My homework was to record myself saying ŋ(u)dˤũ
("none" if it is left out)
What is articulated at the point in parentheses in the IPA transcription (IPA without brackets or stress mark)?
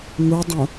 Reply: u